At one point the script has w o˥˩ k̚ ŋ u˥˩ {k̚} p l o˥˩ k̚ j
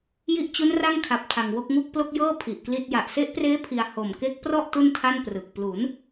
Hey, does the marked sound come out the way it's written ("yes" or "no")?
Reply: yes